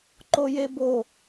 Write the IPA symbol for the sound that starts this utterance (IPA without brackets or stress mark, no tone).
ǃ